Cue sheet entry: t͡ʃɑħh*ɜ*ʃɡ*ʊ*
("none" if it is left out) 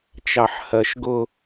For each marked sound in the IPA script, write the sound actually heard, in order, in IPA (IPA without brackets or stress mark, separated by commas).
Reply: ɜ, ʊ